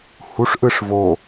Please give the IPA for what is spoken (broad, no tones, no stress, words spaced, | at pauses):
huʂʔɯʂ vo